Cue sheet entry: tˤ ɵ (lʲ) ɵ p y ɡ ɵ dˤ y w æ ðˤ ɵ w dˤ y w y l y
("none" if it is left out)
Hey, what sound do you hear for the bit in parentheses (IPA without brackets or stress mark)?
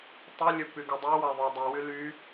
lʲ